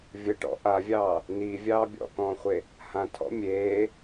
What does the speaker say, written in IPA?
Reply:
vʲ ə ʈ ɔ̰ ʔ a vʲ ɑː | n i vʲ ɑː bʲ ɔ̰ k ɔ̃ː χʷ e | h ã tʰ ɔ̰ mʲ eː

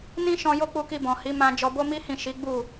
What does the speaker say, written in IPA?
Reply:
n ĩ˦ ʃ ɔ̃˧ j o˦ k͡p u˧ k i˧ b ɔ̃˨ h i˨˦ m ã˧ d͡ʒ ɔ˧ b o˦ m i˦ h ĩ˦˨ ʃ i˨˦ ɡ͡b u˦˨

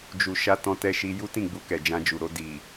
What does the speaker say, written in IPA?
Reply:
d͡ʒ u˨ ʃ a˧ t ɔ̃˧ t ɛ˧ ʃ i˧ j u˦ t ĩ˦˨ ɡ͡b u˧ k ɛ˨ d͡ʒ ã˧ d͡ʒ u˨ ɾ o˧ d i˨

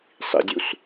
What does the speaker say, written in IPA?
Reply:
sˤ ḭ dʲ u s

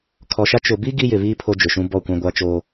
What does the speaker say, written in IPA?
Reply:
kʰ ɔ˨ ʃ a˦ t͡ʃ ʊ˨ b i˦ ɡ i˦ j ɪ˨ β iː˦ pʰ o˦ d͡ʒ ʊ˨ ʃ ũ˦ b ɔ˦˨ kʷ ã˦ ɡʷ a˦ t͡ʃ oː˦

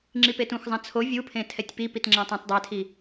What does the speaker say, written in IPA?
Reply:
ŋ͡ǁ i p e t ũ x zˤ ã t͡sʰ o vʲ u pʰ ẽ tʰ ɛ tʲ p i p i t ŋ͡ǁ ã tˤ ã t dˤ ɛ tʰ i

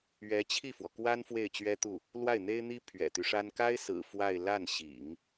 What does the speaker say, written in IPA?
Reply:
ɥ ɛ˧˥ t͡ɕʰ i˥˩ f w ɔ˩ k w a˥ n f w e˥˩ ɪ̯ t͡ɕ ɥ ɛ˥ t̪ u˥˩ | l w a˥˩ ɪ̯ n̪ e˥ ɪ̯ n̪ i˥ pʰ ɥ ɛ̰˨˩ t̪ y˦ ʂ a˥ n k a˥ ɪ̯ s ɹ̩˨˩ f w a˥˧ ɪ̯ l a˥˩ n ɕ ḭ˨˩˦ ŋ

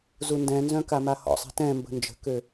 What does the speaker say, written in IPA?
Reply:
z u n d ɛ̃ n z œ̃ k a m a h ɔ̰ sˤ i̤ t ɛ̃ m b ə̤ n d͡ʒ ə̤ k ø

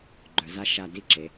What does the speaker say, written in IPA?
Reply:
ɡ͡ǃ œ˩˧ z a˥ ʃ a˧˩ d i˥˧ ǁ e˩˧

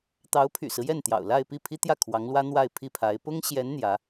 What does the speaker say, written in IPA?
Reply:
t̪ ɑ˧˥ ʊ̯ pʰ y̰˨˩ s ɹ̩˦ j ɛ˥˩ n t̪ j ɑ̰˨˩ ʊ̯ l a˥˧ ɪ̯ p i˥˩ pʰ i˥ t̪ j ä˥˩ kʰ w ɑ˧˥ ŋ l w ä˥ n̪ w a˥˧ ɪ̯ pʰ i˥˩ pʰ a˧˥ ɪ̯ p ʊ˥ ŋ ɕ j ɛ˧˥ n n̪ j ä˧˥

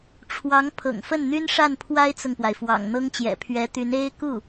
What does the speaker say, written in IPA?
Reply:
ʈ͡ʂʰ w ɑ˧˥ ŋ pʰ ɤ̰˨˩ ŋ f ə˥˩ n n̪ y˥ n ʂ a˥˩ n pʰ w a˥ ɪ̯ t͡s ʊ˨ ŋ p w a˩ ɪ̯ f w ɑ̰˨˩ ŋ n̪ ɤ˥ ŋ t͡ɕ j ɛ̰˨˩ pʰ ɥ ɛ˧˥ t̪ y˧˥ n e˥ ɪ̯ k u˥˩

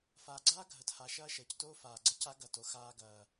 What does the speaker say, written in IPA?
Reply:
f aː˨ ɡ͡ǀ aː˦ ɡʱ ə˨ t h a˨ ʃ ɐː˦ ʃ əː˨ c t oː˦ f aː˨ ɡ͡ǀ ə˧ c a˦ ɡ ɐ˦˨ t o˧ x aː˧ ɡ ɐː˨

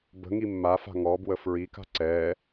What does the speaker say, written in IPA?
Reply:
b ə̤ ŋ i mː a f a̤ ŋ ɔ b w ə f ɹ i k a̤ ǀ ɛ

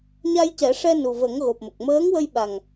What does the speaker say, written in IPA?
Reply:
ɲ a˧ j c ɛ˨˩˦ ʂ ɛ˧ n u˨˩ v ə˨˩˦ ŋ ɣ o˨˩ p̚ m ə˨˩ k̚ m əː˧˥ ŋ w ə˧ j ɓ a˨˩ ŋ

